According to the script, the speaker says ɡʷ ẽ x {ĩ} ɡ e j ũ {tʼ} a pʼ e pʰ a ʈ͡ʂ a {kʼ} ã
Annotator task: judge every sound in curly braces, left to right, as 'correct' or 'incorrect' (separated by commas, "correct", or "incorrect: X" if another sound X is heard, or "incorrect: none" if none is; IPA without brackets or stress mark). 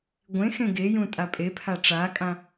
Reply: incorrect: ẽ, correct, correct